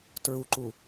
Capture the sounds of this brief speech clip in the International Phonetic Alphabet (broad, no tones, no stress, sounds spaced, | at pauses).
t ɹ u ǃ u